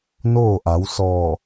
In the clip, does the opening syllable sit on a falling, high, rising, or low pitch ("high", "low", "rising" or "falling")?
falling